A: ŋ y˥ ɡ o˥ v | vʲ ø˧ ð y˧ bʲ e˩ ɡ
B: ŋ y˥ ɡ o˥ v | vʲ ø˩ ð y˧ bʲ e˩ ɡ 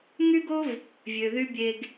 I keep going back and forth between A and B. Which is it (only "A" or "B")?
B